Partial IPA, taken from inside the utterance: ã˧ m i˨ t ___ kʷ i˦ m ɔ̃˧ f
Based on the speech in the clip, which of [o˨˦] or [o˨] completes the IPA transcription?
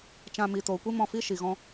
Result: o˨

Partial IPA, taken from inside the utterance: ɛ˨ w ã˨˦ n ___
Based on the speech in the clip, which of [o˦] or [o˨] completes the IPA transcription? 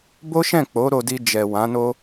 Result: o˦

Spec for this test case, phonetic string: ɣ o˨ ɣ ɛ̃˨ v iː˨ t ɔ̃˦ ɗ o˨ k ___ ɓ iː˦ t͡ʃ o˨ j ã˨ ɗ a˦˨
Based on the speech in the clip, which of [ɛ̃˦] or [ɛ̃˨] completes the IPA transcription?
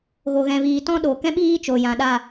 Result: ɛ̃˦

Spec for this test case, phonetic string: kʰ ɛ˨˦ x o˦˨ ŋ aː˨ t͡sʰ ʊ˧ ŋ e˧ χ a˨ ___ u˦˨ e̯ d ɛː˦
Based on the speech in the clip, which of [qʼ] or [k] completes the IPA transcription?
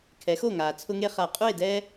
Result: qʼ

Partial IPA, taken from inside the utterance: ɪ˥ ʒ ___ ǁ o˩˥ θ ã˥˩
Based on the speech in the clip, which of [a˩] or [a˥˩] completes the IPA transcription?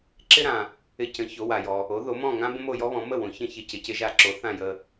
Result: a˥˩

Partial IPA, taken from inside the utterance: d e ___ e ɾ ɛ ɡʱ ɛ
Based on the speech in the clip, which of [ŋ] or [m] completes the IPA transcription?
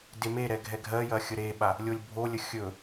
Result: m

